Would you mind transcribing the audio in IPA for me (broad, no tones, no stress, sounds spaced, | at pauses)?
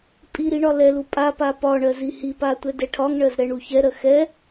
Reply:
pʼ i ɾ i ɳ ɒ l ɛ l u pʼ a p a p ɒ ɳ ɜ z i h i p a tʷ ɛ d ɛ ʈʰ ɒ ŋ ɳ ɜ z ɾ ɛ ɳ u ç ɛ ɾ ɜ x ɛ